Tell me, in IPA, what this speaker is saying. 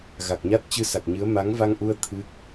ɣ a˨˩ k̚ ɲ a˦˥ t̚ t͡ɕ ɨ˧ s a˨˩ k̚ ɲ ɨ˨˦ ə̯ m a˨˦ ŋ v a˧ ŋ ʔ u˧ ə̯ t̪ʰ ɨ˦˥ k̚

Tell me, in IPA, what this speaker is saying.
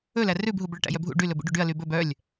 ɵ l æ r ʉ b ɦ u b ɭ œ ʈ æ̰ j œ bʱ ṵ ɖ y l ɵ b ṵ ɖ u ɖ y ɐ̯ l y b ɵ b œ lʲ

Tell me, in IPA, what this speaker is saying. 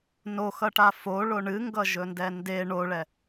n o x ʌ ʈ a f o ɭ o ɳ ɨ ŋ ɡ ʌ ʒ ɵ n d ɛ n d e ɳ o ɭ ɛ

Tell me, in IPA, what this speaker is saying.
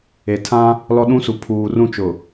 e˨ tʰ ã˦ | l ɔ˦ ɗ ũ˦ s u˨ pʰ uː˨ r ũ˦˨ t͡ʃ ʊ˨

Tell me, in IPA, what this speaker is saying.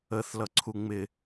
ə θ l ʌ ǀʰ u ŋ͡m ɪ

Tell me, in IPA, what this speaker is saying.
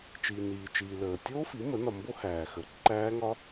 t͡ʃ iː˨ n iː˨ t͡ʃ iː˨ l əː˨ tʲ oː˦˥ f i˩˥ m ə˩˥ n ɒ˨ m b o˦˥ h æː˨ x əː˨ ǃ æː˦˥ ŋ ɒ˦˥

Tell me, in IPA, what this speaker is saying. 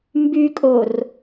m b y kʼ o r

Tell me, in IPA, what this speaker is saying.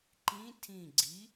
ǃ ĩ tʰ ĩ ɡ͡ǀ i

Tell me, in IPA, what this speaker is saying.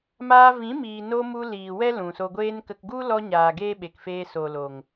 m aː˧ v ĩ˨˦ m iː˨ n o˧ m u˧ l iː˨ w ɛ˦ l ũ˨ s o˧ ɡʷ eː˦ n k ə˨ k ɡ u˦ l ɔ˧ ɲ aː˨ ɡ eː˦ ɓ e˨ k f eː˧ s o˨ l oː˨ ŋ

